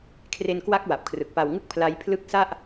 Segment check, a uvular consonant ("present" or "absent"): absent